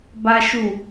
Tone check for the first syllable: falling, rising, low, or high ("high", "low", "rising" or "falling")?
high